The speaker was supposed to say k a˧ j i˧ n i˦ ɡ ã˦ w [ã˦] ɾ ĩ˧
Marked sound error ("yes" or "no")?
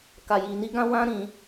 no